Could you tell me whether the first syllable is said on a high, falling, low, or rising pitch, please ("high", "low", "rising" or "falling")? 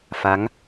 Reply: rising